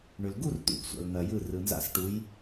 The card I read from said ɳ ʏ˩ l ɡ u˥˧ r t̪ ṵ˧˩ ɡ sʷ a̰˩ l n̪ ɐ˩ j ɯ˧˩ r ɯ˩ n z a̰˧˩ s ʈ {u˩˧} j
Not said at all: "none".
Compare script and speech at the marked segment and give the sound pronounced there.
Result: u˩˧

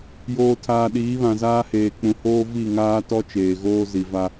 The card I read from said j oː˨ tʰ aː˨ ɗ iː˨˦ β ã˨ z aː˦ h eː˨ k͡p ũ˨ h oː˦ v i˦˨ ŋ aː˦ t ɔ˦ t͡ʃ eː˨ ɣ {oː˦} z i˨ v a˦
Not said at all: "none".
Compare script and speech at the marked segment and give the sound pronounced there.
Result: oː˦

